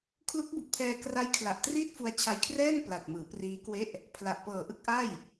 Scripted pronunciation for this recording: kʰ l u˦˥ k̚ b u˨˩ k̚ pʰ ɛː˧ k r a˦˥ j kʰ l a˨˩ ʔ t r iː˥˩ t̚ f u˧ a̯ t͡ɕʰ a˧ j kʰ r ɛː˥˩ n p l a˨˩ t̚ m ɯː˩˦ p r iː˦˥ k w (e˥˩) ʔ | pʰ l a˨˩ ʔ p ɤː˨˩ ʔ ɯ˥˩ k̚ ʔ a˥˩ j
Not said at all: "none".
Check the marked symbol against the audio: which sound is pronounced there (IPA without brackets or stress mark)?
e˥˩